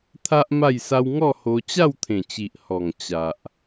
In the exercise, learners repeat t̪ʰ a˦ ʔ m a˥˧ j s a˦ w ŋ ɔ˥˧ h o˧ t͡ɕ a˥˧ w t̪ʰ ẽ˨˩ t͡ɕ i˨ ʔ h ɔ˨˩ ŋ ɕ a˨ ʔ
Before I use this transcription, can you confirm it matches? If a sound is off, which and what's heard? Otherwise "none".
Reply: ɕ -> t͡ɕ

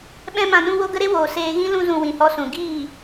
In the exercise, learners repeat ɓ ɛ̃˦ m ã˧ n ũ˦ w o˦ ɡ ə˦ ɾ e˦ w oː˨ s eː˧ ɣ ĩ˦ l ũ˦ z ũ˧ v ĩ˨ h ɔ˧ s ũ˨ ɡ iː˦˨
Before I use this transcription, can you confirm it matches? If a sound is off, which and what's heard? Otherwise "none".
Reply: v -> w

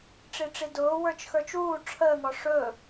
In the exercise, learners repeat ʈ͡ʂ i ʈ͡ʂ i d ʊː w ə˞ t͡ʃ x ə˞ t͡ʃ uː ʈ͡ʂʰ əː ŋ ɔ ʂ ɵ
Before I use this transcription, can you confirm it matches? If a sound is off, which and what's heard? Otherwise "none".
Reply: none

